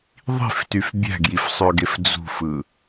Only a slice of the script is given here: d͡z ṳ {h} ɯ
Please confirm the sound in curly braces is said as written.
no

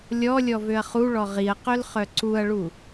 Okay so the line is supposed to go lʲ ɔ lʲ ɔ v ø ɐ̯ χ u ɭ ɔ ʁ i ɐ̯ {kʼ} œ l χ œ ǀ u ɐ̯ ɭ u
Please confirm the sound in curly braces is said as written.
no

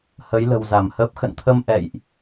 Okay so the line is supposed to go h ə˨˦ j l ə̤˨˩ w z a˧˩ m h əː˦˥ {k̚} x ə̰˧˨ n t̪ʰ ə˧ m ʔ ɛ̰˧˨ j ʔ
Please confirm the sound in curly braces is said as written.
no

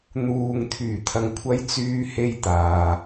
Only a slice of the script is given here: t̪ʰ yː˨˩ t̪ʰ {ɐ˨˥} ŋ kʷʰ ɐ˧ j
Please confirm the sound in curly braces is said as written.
no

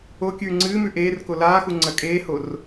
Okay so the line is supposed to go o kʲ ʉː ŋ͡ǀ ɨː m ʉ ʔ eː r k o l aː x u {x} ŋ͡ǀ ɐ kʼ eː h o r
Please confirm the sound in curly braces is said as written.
no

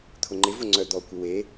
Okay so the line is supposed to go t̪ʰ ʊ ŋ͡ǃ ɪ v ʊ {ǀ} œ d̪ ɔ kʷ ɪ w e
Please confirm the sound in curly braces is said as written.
no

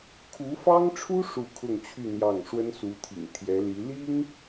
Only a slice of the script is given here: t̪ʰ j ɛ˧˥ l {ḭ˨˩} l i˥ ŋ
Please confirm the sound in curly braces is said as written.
no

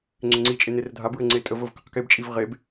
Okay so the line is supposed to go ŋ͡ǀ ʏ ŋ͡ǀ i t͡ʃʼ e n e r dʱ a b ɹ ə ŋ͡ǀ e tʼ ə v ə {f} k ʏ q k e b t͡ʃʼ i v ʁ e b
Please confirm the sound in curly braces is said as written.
no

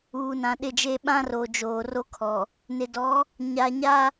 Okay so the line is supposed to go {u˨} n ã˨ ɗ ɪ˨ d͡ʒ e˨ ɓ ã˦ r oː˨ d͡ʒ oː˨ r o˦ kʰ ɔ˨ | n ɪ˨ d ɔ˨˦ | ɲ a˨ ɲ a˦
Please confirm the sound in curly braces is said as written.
no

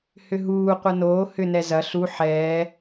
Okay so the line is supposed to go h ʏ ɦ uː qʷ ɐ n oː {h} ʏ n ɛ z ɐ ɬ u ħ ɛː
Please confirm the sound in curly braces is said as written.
yes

